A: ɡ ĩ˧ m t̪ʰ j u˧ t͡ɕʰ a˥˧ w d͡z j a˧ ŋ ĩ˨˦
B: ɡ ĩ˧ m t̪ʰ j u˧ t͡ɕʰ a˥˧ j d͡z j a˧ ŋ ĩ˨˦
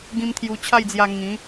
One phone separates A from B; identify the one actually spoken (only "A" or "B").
B